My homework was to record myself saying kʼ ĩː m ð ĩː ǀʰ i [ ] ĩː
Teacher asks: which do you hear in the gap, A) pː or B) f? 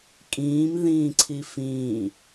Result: B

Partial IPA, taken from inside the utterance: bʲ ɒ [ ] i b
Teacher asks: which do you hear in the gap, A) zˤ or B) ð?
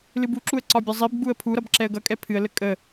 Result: A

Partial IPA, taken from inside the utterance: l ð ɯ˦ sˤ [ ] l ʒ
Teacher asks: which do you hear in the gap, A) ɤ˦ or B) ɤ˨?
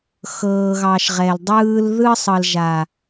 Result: B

